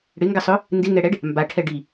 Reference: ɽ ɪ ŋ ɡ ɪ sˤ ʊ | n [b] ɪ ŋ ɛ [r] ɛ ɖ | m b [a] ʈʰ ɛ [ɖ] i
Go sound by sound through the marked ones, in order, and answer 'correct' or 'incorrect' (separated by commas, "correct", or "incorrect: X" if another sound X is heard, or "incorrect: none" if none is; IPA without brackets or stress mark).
incorrect: d, incorrect: ɽ, correct, correct